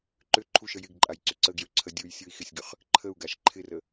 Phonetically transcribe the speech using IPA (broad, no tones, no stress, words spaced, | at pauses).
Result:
ǃʏ ǃʰuʃə jɪɡǃʼajǀʏ ǀəɡjøǀʰə dʲujsʲoi̯ xɪsʲɡʏχ | ǃʰəu̯ɡaʃ ǃʰɪrə